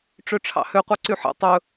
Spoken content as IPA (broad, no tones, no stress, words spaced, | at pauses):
ʈ͡ʂøʈ͡ʂʰɑ̰hø qʷɑǀyħḛ tˤɵ